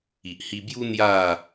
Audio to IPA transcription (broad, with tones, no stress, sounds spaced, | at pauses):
i˨ ʔ h i˧ b j u˦ n̪ j a˥˧